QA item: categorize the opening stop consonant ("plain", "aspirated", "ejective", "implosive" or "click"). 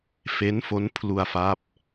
aspirated